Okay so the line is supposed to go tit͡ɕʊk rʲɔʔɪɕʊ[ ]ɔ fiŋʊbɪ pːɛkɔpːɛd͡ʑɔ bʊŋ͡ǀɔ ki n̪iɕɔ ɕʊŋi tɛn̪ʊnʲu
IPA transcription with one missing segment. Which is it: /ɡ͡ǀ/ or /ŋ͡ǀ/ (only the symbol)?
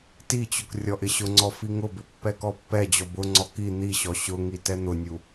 ŋ͡ǀ